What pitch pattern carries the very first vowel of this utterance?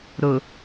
low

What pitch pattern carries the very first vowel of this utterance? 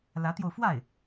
rising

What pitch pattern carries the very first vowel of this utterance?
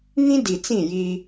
high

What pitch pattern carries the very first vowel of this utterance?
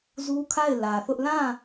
high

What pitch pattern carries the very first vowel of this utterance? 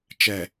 low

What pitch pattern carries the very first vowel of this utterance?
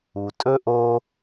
low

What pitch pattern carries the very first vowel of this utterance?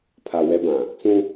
low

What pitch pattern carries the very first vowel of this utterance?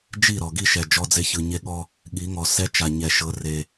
falling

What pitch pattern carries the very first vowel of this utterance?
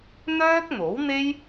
high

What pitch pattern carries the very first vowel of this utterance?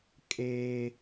high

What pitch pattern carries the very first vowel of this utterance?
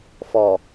low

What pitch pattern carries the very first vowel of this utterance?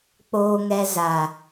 low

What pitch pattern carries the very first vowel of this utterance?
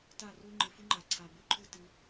falling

